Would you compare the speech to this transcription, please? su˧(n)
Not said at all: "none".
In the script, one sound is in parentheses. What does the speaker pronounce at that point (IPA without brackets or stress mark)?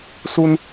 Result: n